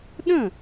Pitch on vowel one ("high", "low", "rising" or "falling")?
falling